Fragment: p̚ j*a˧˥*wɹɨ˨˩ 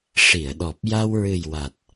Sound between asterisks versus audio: incorrect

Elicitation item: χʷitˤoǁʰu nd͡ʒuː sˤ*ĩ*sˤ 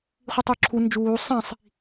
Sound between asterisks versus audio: correct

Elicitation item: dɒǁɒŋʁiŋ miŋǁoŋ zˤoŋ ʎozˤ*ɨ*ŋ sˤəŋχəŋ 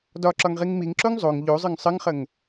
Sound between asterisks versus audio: correct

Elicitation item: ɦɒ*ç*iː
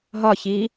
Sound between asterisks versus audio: correct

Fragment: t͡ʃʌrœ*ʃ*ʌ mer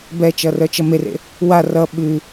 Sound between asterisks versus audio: incorrect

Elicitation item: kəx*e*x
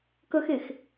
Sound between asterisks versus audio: correct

